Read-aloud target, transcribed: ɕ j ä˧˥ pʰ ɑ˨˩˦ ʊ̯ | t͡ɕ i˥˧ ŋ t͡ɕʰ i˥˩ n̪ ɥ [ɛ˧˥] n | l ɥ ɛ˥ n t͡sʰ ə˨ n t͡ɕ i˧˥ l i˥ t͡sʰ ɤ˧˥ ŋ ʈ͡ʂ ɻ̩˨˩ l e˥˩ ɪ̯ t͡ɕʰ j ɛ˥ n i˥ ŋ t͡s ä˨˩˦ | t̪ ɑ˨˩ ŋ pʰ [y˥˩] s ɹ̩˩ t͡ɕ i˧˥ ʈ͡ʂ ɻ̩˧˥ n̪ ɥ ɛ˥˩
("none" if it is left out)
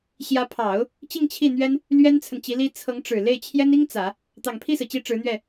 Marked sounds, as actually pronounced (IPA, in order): ɛ˥, i˥˩

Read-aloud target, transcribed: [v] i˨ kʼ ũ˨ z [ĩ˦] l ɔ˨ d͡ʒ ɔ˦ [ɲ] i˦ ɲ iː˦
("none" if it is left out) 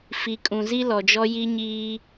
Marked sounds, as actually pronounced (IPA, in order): f, i˦, j

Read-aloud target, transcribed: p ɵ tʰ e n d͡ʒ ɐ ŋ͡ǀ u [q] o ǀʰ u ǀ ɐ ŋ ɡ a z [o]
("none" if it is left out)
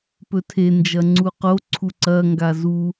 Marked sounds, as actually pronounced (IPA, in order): q, u

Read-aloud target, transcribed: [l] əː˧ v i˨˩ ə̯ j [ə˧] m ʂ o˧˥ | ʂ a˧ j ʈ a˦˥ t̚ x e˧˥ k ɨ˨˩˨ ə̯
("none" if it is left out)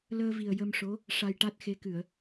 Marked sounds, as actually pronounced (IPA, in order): l, ə˧

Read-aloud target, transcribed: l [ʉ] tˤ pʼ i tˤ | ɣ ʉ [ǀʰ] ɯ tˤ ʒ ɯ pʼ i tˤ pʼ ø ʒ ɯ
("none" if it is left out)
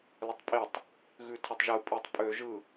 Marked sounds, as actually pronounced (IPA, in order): ə, tʰ

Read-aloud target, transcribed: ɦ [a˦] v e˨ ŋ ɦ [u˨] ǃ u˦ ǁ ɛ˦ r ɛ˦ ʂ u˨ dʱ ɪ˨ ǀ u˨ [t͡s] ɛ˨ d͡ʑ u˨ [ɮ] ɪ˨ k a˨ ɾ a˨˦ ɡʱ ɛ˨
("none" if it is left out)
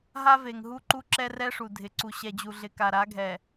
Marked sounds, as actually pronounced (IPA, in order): a˦, u˦, ɕ, ɮ

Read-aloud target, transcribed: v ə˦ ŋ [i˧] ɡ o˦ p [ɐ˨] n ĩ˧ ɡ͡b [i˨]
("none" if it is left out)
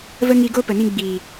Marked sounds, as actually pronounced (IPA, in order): i˧, ə˨, iː˨

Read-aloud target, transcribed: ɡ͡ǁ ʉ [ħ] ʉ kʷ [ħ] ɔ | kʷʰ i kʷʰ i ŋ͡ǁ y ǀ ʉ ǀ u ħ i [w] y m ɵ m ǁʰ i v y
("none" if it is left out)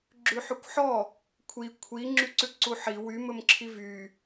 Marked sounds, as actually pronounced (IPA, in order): ħ, ħ, w

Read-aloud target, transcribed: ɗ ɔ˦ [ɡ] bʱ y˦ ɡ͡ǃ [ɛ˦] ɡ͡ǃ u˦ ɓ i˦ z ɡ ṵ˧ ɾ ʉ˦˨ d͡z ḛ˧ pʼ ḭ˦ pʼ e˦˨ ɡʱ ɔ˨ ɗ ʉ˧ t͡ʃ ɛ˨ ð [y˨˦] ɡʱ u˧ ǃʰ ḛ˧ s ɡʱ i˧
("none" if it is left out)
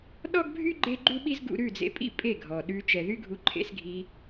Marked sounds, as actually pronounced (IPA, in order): ɡ, e˦, y˦

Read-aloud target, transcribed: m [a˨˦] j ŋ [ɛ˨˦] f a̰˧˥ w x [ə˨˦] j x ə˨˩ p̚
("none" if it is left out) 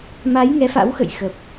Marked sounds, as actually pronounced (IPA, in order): a˨˦, ɛ˨˦, ə̰˧˨

